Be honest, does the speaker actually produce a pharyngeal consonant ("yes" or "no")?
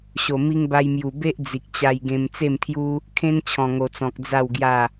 no